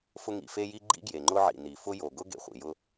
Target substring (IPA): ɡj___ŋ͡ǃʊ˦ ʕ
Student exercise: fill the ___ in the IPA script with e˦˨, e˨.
e˨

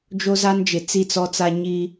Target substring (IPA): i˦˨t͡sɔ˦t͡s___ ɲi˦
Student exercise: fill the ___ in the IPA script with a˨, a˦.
a˦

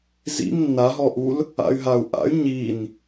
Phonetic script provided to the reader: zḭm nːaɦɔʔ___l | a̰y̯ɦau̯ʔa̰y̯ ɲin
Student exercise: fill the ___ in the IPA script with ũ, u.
u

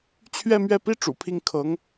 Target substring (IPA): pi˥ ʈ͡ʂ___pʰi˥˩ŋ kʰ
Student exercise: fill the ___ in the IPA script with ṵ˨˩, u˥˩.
ṵ˨˩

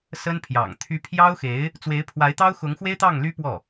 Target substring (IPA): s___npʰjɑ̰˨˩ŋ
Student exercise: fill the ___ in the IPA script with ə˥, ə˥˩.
ə˥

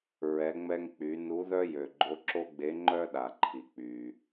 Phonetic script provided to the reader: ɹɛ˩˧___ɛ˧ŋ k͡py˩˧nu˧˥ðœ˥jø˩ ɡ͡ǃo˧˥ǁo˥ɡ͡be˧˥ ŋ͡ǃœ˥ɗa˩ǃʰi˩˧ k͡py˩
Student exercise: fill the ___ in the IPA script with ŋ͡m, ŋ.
ŋ͡m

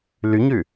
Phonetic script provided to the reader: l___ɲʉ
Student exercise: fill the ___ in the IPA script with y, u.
y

